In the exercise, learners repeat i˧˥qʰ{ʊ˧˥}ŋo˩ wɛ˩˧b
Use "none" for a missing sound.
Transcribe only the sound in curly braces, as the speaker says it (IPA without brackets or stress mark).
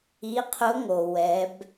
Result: ʊ˧˥